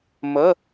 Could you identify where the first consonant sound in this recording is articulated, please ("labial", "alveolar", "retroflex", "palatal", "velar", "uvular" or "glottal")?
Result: labial